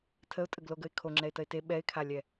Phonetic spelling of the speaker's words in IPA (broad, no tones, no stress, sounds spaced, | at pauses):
tʰ ə ʊ̯ tʼ ə ɡ l o ɡ ə ɪ̯ kʰ o ŋ͡ǁ ɛ ɪ̯ t ə ɪ̯ t e ɓ ɛ ɪ̯ kʰ a lʲ ɛ